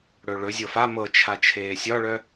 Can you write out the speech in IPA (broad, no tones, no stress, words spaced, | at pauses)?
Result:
ɽɵɭɵ zʲɤfa mɤt͡ʃʰa t͡ʃʰeːsʲɒɭœ